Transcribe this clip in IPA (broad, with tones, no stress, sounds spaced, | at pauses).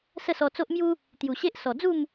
s ə˥˧ s ɔ˧ t͡s o˦ ʔ m j u˦ | t̪ j u˨˩ ɕ e˦ ʔ s ɔ˨˩ d͡z u˥˧ m